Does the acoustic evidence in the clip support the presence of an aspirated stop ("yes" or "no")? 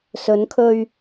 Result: yes